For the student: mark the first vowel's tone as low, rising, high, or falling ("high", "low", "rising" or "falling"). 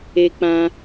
high